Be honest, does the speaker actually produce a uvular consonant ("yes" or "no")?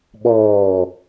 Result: no